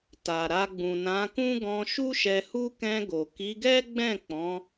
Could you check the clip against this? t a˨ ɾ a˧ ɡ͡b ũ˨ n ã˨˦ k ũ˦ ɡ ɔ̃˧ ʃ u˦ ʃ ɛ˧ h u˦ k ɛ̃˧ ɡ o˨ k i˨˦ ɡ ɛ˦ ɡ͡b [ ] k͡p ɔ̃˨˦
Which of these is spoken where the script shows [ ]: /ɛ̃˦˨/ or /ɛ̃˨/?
ɛ̃˦˨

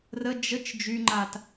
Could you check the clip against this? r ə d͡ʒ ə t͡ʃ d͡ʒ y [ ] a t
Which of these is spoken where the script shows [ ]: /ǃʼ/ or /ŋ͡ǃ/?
ŋ͡ǃ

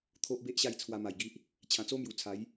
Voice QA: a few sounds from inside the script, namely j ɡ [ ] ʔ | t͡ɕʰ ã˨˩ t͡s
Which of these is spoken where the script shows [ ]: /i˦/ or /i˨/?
i˦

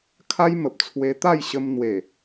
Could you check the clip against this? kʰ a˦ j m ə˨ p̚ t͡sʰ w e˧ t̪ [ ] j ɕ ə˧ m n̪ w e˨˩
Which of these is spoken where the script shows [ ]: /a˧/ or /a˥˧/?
a˥˧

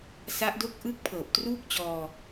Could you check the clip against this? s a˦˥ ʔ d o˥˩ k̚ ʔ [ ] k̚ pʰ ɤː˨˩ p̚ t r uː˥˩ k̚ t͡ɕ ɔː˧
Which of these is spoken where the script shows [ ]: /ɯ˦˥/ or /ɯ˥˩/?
ɯ˥˩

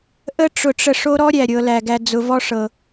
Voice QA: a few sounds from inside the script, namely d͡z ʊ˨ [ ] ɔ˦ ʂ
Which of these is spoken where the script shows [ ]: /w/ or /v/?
v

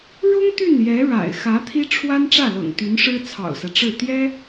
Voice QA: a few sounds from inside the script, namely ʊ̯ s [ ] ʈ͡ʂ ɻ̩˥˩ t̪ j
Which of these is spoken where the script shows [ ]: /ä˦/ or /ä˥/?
ä˦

